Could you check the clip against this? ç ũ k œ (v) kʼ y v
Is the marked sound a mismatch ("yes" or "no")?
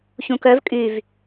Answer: no